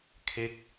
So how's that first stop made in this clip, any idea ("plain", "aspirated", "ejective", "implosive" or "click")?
aspirated